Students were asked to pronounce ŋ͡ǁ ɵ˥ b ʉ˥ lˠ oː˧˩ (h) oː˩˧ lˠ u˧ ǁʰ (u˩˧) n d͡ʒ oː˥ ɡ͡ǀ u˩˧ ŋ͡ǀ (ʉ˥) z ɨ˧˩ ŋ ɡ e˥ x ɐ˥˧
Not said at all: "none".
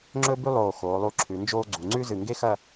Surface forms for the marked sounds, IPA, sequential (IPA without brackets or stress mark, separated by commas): x, ʉ˩˧, ʉ˥